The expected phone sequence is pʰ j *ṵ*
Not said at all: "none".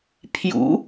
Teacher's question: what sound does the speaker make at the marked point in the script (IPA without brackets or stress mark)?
ṵ